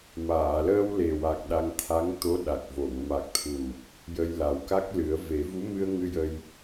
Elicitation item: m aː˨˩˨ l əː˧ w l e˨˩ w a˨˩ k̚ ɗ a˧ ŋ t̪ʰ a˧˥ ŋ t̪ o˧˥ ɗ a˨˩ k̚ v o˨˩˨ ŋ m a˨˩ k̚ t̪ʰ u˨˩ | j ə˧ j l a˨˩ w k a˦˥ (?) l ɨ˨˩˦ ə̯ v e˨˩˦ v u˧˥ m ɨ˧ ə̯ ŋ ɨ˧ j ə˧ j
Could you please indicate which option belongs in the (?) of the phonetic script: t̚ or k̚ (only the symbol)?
k̚